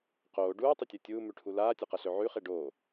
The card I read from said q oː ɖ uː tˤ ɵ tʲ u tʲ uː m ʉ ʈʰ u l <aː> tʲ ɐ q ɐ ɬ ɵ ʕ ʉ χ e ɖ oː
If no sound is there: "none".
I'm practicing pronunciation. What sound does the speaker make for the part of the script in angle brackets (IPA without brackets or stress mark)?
aː